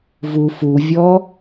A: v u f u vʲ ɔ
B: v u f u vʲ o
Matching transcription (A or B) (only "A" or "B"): A